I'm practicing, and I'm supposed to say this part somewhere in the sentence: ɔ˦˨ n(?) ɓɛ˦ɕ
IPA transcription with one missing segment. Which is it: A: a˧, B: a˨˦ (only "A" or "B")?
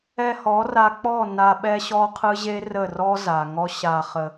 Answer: A